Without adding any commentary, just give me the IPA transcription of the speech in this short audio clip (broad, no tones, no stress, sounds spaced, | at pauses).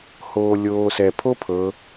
h oː lʲ oː s ɛ pʰ o pʰ ɤ